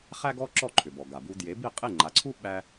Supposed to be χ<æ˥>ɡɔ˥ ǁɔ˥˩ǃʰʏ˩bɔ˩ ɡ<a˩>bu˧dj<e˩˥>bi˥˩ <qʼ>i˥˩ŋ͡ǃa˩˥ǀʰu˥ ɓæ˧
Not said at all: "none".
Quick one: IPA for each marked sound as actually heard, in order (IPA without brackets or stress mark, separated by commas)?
æ˥, a˩, e˩˥, qʼ